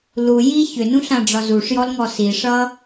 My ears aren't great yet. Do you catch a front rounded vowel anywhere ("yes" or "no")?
yes